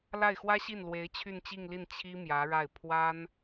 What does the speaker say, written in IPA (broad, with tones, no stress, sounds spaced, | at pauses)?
l a˥˩ ɪ̯ x w ä˥ ɕ i˥˩ n l w e˧˥ ɪ̯ t͡ɕʰ y˥˧ n t͡ɕ i˥˧ ŋ l i˥˩ n t͡ɕʰ i˥ m j ä˧˥ ɻ a˥˩ ɪ̯ pʰ w a˥ n